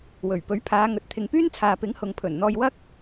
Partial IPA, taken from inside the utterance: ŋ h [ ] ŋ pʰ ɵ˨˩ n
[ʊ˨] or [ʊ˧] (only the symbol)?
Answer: ʊ˨